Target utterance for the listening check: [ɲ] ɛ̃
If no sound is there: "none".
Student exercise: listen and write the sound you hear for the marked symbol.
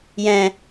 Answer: j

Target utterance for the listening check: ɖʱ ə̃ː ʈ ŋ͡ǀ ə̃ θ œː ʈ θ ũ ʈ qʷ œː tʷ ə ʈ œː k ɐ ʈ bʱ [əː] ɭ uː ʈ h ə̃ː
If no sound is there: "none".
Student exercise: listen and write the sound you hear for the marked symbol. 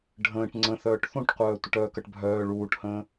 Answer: œː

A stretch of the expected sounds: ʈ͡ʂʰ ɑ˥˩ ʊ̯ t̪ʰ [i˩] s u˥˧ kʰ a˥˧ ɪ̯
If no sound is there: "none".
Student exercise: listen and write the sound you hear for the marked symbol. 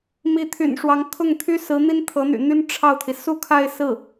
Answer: i˩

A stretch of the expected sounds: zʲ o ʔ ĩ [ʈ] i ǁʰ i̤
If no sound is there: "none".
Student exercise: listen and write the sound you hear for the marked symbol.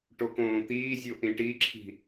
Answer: ʈ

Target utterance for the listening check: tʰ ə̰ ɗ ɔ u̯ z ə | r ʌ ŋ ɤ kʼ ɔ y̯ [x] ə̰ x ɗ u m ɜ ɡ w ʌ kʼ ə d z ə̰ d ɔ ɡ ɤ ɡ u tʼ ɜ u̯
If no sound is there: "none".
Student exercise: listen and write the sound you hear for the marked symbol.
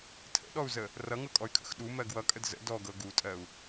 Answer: kʰ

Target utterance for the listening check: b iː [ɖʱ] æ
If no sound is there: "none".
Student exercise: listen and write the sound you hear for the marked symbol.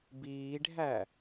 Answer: ɖʱ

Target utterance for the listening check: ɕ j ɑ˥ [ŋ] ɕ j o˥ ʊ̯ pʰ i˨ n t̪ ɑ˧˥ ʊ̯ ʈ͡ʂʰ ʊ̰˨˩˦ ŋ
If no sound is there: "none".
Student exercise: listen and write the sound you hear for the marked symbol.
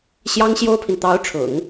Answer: ŋ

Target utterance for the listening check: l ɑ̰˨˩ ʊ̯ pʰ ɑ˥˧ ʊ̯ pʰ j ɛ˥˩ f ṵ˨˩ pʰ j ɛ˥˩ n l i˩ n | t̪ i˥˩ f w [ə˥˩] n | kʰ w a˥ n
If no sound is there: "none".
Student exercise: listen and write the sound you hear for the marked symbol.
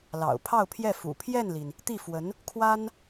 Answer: ə˧˥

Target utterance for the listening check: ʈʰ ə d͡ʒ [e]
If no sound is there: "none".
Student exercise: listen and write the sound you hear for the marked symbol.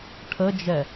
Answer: ɛ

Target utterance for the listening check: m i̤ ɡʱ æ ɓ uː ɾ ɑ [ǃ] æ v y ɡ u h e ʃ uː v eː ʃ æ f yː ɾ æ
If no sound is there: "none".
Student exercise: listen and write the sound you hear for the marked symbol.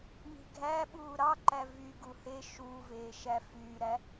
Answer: ǃ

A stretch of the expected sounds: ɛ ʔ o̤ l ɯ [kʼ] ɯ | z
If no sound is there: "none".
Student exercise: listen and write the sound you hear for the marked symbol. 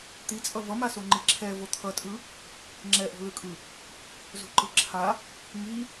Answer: kʼ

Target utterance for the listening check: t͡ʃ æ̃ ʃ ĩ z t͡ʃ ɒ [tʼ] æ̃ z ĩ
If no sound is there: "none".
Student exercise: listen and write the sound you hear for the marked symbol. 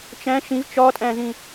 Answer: tʼ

